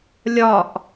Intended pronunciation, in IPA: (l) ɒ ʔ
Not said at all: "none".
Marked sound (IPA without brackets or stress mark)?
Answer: lʲ